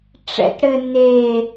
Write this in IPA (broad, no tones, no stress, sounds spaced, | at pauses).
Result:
ʈ͡ʂ ɛ̰ t ɽ ɘ n e